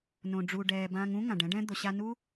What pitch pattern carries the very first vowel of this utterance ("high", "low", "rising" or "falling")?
low